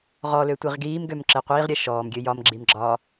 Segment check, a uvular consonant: present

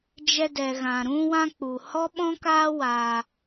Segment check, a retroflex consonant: absent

